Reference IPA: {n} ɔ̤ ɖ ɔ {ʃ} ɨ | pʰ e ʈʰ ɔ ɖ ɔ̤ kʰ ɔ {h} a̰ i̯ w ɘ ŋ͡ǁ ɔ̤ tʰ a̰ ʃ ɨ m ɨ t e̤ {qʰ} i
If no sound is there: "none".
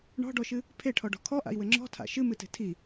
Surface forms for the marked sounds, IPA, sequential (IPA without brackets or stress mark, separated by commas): ɳ, ʃ, ʔ, tʰ